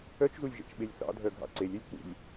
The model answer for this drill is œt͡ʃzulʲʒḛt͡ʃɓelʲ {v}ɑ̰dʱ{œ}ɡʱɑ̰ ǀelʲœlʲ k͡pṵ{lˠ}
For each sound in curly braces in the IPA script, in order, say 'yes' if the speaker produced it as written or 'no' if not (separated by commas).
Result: no, yes, no